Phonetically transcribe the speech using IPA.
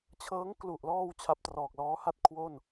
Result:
t͡ɕʰ ɤː˦˥ ŋ k l u˨˩ ʔ l ɔː˧ w t͡ɕʰ a˦˥ p̚ t r ɔː˨˩ k̚ l ɔː˦˥ h a˥˩ t̚ kʰ w o˥˩ n

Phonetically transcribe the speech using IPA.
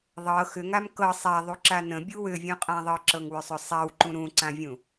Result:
ðˤ ɤ x ʏ ŋ a m k ɤ sˤ a ðˤ u ǁ a n ə̃ bʲ u w ʏ vʲ ũ qʼ ã ðˤ ɤ ǁ ɤ ŋ w ʏ sˤ ʏ sˤ a w ǃ ũ ɾ ũ ǀ ã vʲ ũ

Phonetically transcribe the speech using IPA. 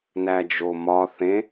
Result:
n æ d͡ʒ o m ɒ θ ẽ

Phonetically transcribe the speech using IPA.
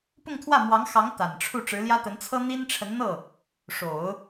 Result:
p ʊ˥˧ ŋ t̪ʰ w ä˥˩ m w ɑ˧˥ ŋ x ɑ˧˥ ŋ t̪ a˨˩ n ʈ͡ʂʰ u˥˩ ʈ͡ʂ ɻ̩˧˥ l j ä˥ t̪ ə˧˥ n t͡sʰ ɤ˥ n̪ i˥ n ʈ͡ʂʰ ə˧˥ n n̪ ɤ˥˩ | ʂ o˨˩˦ ʊ̯

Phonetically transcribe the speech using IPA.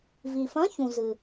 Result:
v i˩ f ɐ̃˧˥˧ ç ũ˩ z ɨ˩

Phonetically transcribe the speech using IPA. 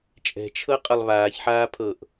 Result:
t͡ʃʼ ɛ̤ t͡ʃʰ ɤ qʼ ʌ lˠ β aː ç ħ aː pʰ ɤ ʔ

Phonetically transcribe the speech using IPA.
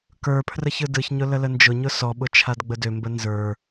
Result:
k ə˞ pʰ r ə ç ɯ d ɯ ç ɲ ʊ l ə l ə n d͡ʒ ʊ ɲ ʊ s ɔ ɓ ʊ t͡ʃʰ a d ɡ͡b ə d ø m b ə n z ə˞

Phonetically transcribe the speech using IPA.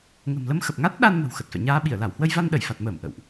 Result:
ŋ ə̤˨˩ m l ə˧ m x ə˨˩ p̚ ŋ a˦˥ t̚ ɗ a˧ n m ə̤˨˩ w x ə˨˩ t̚ f ɛ̰˧˨ ɲ aː˧ ɓ i˧˩ ə̯ l a˧˩ w h w ə˧ j v a˧ n ɗ ə˧˩ j f a˨˩ t̚ m əː˧˩ m ʔ ə̰˧˨ w ʔ

